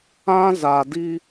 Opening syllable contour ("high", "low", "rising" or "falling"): high